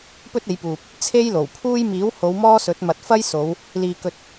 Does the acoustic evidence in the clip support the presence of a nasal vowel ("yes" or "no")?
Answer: no